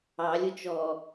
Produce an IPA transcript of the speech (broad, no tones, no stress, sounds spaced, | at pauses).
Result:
ɑ lʲ ʊ t͡ʃ ɔ